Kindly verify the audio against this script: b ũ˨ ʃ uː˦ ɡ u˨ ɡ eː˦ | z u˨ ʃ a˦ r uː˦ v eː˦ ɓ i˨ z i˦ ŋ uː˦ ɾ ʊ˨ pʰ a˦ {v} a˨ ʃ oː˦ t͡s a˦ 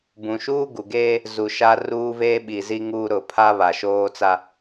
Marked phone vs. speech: incorrect: β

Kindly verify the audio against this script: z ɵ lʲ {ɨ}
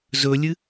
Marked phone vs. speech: correct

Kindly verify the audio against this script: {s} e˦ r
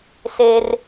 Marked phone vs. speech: correct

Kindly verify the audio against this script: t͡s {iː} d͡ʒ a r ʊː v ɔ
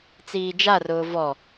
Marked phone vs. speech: correct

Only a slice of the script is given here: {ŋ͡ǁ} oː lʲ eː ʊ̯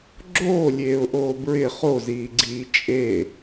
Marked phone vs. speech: incorrect: ɡ͡ǁ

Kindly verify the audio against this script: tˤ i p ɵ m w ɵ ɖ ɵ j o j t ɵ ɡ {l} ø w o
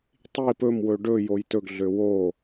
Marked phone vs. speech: incorrect: ɮ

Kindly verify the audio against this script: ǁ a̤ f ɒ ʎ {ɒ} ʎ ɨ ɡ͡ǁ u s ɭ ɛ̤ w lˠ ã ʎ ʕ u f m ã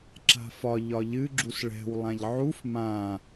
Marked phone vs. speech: correct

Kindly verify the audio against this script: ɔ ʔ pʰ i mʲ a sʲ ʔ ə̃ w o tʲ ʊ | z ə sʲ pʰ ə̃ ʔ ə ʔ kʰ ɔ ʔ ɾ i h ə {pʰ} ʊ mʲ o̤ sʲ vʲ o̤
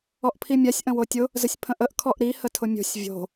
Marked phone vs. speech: incorrect: tʰ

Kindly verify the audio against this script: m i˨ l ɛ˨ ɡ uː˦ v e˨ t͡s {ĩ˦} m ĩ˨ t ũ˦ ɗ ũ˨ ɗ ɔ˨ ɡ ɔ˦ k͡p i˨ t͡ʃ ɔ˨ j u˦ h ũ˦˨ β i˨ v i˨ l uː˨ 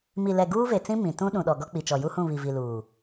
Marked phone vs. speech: correct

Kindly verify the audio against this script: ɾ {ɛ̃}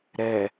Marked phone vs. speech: incorrect: ɛ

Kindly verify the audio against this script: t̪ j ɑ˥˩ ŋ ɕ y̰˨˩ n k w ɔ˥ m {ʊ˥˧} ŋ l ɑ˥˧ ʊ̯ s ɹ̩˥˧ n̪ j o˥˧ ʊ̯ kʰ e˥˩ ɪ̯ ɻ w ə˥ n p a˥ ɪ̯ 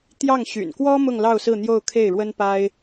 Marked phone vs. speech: correct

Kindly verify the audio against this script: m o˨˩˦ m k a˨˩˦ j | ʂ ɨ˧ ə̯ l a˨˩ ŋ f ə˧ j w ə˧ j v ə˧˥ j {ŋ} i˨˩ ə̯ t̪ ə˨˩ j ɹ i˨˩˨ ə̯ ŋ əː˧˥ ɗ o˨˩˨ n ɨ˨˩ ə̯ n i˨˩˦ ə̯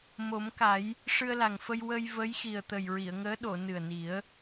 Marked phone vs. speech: incorrect: x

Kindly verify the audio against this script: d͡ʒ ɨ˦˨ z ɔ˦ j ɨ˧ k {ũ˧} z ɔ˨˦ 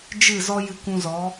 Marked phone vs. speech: correct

